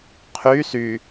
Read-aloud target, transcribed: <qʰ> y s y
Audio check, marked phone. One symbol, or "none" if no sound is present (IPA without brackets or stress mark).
qʰ